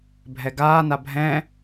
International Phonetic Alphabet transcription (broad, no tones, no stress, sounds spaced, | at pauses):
bʱ ɛ ɡ aː n a bʱ ɛ̃